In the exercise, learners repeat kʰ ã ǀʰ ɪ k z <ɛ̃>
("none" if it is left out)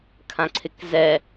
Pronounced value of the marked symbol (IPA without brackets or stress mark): ɛ